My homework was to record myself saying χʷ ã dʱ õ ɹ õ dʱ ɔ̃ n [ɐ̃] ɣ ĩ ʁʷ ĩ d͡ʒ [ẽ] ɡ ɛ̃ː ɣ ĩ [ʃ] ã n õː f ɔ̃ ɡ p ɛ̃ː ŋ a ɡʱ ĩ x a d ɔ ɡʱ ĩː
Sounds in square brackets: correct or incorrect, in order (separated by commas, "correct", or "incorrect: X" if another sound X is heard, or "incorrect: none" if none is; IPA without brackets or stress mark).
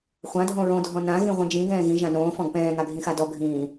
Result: incorrect: ã, incorrect: ĩ, incorrect: ʒ